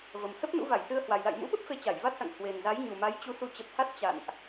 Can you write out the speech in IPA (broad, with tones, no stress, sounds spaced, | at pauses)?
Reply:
v ə˨˩ m s ə˦˥ p̚ n ṵ˧˥ v a˧˩ j s ɨ˧ ə̯ h w a˨˩ j l a̰˧˨ j m ṵ˧˥ ɓ ə˦˥ p̚ f e˧ t͡ɕ a˧˩ j v a˦˥ t̚ s a̰˧˨ ŋ h w e˨˩ n z a˨˦ j ɲ u˨˩ m a˨˦ j t͡ɕ u˨˦ s u˧ t͡ɕ ə˨˩ p̚ h a˦˥ t̚ t͡ɕ a̰˧˨ n ʔ